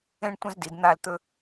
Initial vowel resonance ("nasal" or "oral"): nasal